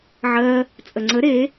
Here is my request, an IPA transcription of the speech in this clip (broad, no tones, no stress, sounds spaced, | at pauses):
ʕ ɜ | t͡sʼ ə ŋ͡ǀ ə ɾ e